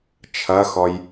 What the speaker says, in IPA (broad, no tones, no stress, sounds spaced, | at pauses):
t͡ʃʰ ɐ x ɔ j